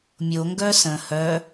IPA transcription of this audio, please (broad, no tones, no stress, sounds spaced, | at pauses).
mʲ o ŋ ɡ œ s ə̃ h œ